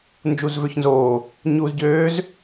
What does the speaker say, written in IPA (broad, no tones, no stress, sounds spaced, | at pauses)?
n d͡ʒ u z v ø ç n z oː | ɲ uː z ɟ øː z